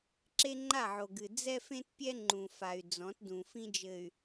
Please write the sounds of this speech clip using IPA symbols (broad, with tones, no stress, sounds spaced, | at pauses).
ǁ e˦ ŋ͡ǃ a˦˨ ʕ o˨ ɡ ɨ˨ d͡z ɛ˦ f ẽ˦ t pʲ ɛ˦ ŋ͡ǃ ũ˨ f a˨ y̯ d͡z ɔ̃˨˦ t d ũ˨ f ĩ˦ d͡ʒ ɘ˨ y̯